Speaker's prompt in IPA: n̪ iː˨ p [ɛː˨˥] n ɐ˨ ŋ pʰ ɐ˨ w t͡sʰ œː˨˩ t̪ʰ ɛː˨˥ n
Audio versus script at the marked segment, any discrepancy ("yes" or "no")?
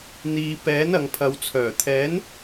no